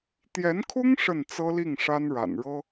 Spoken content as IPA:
t̪jɛ˧˥nkʰʊ˥ŋ ʂə˥˩nt͡sɤ˥li˥˩ŋ ʂa˥nɻa̰˨˩nɻɤ˥

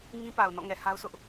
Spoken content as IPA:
ŋĩ˦pa˨ʊ̯ nɔ̰˦˨ŋɛ˨ha˦ʊ̯sʰʊ˦ʔ

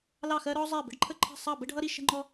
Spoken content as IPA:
lɑ˥˧xɜ˥ ɾɔ˥zˤɜ˥˧ bə̤˥ɖǃʰə˥˧ǃʰə̤˥˧ sˤɑ˥˧bə˥ɖʱʌ˥ ɾi˥ ʃə̤˥ŋ͡ǃɔ˥

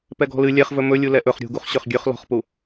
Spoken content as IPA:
pɛɡɔ̤lɨ lʲɛχvɵ mɵlʲu lɛʔɵχ ɾʲṳɡuχ ɕøχɡʲøχ lɔ̤χpu

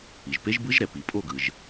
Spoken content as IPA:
i˩ʒpe˦˥ʒbɯ˦˥ʒɾɛ˩ pi˩ pʼo˥˧ɡɯ˩ʒ

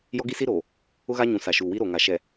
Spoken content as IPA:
jɔ˦ɡi˦si˦ɾoː˨ | ʊ˦ɣa˦ɲũ˨ sa˨ʃuː˨wi˦ ɾo˨ŋa˨ʃɛ˨

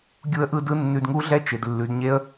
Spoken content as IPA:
ɡʲu˦ə̯ʔɯ˦dɯ˦ nːʉ˧dŋu˦ ɮɛ˦t͡ʃɪ˨d lːʉ˨˦dɲe˦ə̯

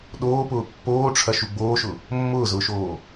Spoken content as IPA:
ɗoːpʊː pːoːʈ͡ʂʰɐʃu ɡ͡boːʃʊ | mːʊːzʊːʃoː

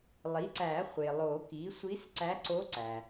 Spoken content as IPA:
lˠi˩˥ǀæ˨˩˦χʷe˩lˠo˨˩˦ ki˩˥ sʷi˧˥sǀæ˧˥ǀo˧˥ǀæ˩

